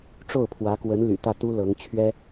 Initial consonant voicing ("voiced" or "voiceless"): voiceless